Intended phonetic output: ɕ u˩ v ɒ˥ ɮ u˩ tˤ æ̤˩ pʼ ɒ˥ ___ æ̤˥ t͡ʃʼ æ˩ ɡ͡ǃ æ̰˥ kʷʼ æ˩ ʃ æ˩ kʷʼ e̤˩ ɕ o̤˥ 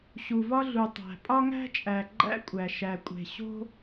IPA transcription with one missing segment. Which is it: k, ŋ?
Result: ŋ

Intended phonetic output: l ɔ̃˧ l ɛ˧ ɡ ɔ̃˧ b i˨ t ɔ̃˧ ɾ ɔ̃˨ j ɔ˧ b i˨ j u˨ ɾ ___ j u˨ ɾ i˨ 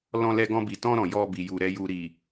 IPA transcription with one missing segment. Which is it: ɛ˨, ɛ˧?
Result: ɛ˨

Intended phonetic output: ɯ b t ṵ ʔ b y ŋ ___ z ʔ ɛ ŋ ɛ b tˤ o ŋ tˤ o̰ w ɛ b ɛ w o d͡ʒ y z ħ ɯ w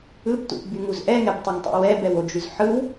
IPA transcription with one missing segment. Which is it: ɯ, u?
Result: u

